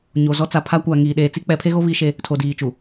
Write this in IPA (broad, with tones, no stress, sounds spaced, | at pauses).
ɲ o˨ z ɔ˦ t͡s a˨ pʰ a˦ kʷ a˨ ŋ iː˨ ɗ eː˨ t͡s i˦ k͡p ɛ˨˦ pʰ e˦ ɣ o˦ β i˦ ʃ e˦ | tʰ o˨ d iː˨ t͡ʃ u˨